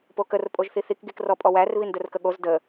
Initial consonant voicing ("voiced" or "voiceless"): voiceless